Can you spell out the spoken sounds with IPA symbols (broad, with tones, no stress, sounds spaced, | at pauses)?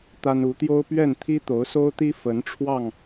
t̪ a˦ n u˨˦ t̪ j o˦ ʊ̯ p ɥ ɛ˥˨ n t̪ʰ i˦ t̪ o˨˦ ʊ̯ s o˦ ʊ̯ t̪ i˦ f ə˨˦ n ʈ͡ʂʰ w ɑ˥˨ ŋ